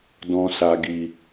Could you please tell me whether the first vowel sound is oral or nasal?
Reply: nasal